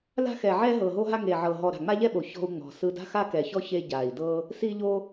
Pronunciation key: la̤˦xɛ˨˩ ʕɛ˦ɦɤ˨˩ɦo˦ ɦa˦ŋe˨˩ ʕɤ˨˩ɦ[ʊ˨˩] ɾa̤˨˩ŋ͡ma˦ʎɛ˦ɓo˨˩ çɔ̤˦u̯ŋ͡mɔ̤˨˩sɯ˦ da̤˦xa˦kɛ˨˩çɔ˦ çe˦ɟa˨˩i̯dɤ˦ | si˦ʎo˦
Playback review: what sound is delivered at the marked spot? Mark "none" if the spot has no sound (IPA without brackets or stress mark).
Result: ɔ˨˩